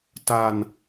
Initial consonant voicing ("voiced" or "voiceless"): voiceless